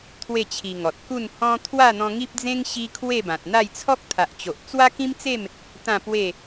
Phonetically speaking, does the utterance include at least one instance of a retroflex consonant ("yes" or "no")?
no